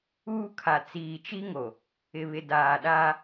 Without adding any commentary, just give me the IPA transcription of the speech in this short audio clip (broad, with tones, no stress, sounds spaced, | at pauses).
uː˦ kʰ a˨ t͡s iː˨ t͡ʃ i˦ ŋ o˨ | ɪ˨ β ɪ˨ d aː˨ ɗ aː˦